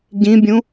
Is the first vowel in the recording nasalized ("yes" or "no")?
yes